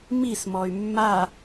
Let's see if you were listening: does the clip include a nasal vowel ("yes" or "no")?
no